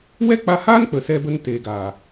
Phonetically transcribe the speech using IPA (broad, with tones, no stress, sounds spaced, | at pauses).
w ɛ˦ k͡p a˧ h aː˦ n k͡p ə˨ s ɛ˧ b ə˧ n t eː˨ ɡ aː˨